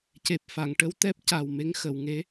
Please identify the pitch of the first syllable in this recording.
low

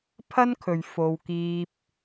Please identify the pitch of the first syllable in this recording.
high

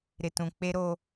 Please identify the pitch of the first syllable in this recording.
low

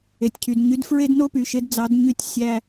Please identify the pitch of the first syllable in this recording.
low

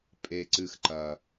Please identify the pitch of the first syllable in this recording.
high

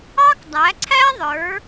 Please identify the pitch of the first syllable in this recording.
high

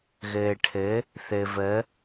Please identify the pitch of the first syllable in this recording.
low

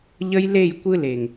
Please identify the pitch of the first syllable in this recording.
high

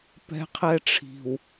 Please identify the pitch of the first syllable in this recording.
high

